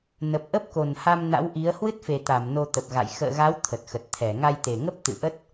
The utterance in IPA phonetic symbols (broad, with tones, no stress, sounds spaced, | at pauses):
n ə˨˩ p̚ ʔ ə˦˥ p̚ k o˨˩ n h a˧ m n a̰˧˥ w ʔ i˨˦ ə̯ h w ɨ˦˥ t̚ f e˨˩ t̪ a˧˩ m n o˧ t̪ ə˨˩ p̚ ɣ a̰˧˨ j x ə̰ː˧˨ ɣ a˨˦ w t̪ʰ ə˨˩ t̚ x ə˨˩ t̚ t̪ʰ ɛ˧˩ ŋ a˧ j t̪ e˨˩ ŋ ə˦˥ p̚ t̪ ɨ̰˧˨ ʔ ə˦˥ t̚